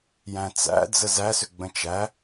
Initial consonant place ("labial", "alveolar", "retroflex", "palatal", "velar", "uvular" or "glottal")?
palatal